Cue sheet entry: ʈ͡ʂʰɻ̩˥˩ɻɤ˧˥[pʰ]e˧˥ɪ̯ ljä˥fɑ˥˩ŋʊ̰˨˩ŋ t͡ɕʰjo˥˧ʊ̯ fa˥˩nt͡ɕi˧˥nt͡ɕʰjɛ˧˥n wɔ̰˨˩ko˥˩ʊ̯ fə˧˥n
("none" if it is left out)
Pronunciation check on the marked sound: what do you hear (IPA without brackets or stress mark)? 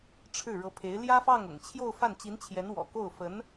pʰ